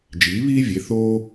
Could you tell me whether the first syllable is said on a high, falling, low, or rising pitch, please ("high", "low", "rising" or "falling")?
rising